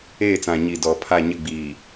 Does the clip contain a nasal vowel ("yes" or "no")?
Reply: yes